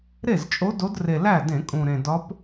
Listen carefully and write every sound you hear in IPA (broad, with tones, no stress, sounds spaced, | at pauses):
ɾ e˥˩ z t͡ʃʼ o˧˥ d o˧˥ d r e˨˩ l æ˥˩ d ẽ˧˩˧ kʼ ũ˨˩ ɾ ẽ˨˩ d ɒ˧˥ p